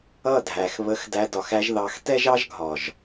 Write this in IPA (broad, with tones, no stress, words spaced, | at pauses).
ʌ˦˨dʱæ˨xβə˧x dæ˧dɒ˨xæ˧ʒðɑ˨˦x tɛ˦ʒɑ˦ʒɡʱɒ˨ʒ